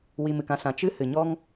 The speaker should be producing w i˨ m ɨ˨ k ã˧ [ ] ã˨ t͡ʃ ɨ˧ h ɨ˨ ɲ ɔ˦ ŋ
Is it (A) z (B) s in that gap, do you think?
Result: B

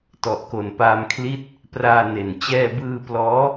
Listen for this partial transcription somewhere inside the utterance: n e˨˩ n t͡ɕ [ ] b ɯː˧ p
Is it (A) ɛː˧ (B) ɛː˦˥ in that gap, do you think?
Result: A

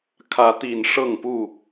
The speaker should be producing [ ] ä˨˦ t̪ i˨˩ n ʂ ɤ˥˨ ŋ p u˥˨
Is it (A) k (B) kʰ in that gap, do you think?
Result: B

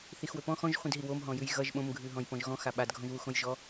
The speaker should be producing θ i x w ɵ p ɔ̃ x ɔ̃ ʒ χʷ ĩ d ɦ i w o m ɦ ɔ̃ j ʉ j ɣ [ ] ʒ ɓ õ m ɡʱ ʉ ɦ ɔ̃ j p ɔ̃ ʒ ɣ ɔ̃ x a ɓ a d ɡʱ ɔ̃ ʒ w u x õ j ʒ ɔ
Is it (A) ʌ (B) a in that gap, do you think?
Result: A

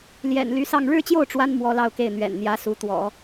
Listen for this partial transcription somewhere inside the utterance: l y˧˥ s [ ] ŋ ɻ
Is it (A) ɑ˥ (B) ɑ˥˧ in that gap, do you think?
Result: B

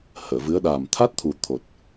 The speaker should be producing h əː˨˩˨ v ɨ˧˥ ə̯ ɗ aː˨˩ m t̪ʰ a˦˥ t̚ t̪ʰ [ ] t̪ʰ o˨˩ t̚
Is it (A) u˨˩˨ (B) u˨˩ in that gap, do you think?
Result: B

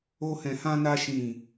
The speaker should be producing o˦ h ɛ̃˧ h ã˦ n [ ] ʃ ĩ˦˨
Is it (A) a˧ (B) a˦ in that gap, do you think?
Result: B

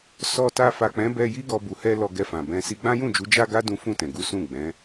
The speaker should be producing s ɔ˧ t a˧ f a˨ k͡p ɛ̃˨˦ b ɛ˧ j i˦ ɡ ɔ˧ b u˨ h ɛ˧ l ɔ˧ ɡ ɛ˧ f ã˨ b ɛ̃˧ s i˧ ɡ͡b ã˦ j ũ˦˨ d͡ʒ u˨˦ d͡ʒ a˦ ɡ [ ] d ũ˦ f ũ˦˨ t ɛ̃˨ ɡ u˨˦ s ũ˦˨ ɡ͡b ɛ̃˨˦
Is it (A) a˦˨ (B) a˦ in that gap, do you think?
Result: B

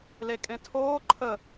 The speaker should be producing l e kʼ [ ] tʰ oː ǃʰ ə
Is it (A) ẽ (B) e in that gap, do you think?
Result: A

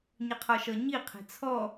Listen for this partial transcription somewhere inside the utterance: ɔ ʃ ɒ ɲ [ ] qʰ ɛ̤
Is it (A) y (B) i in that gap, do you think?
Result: B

